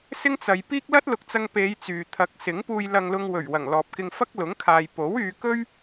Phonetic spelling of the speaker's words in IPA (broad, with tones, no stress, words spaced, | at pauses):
sɪ˥ŋt͡sɐ˨˧j piː˥k̚lɐ˥t̚lʊ˨k̚t͡sɐ˧ŋ pe˨˧j t͡syː˨ t̪ʰɐ˨˥k̚sɪ˨˥ŋpuː˧j lɐ˧ŋlʊ˧ŋwɵ˨˩ɥ wɐ˨˩ŋlɔː˨p̚kɪ˧ŋ fɐ˥k̚lʊ˨˥ŋkʰaː˨j po˨˥wyː˨˧kɵ˥ɥ